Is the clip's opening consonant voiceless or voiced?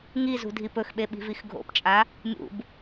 voiced